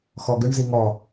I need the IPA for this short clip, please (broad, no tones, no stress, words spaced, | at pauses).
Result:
xɔɡʏɳ ziŋɔ